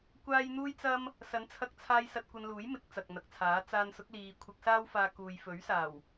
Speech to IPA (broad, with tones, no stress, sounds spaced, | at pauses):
kʷ aː˥ j n̪ uː˥ j t͡s ɐ˥ m | s ɐ˨˥ n t͡sʰ ɐ˧ k̚ t͡sʰ aː˧ j s ɐ˧ t̚ kʷ ɐ˧ n l uː˨˥ j m ɪ˨˥ k̚ t͡s ɐ˨ k̚ n̪ ɐ˨ k̚ t͡sʰ aː˨˥ t͡s aː˧ n s ʊ˨˥ k̚ l iː˨ kʷʰ ɪ˧ k̚ s aː˥ w f aː˧ k uː˨ j f ɵ˨˥ ɥ s aː˨˩ w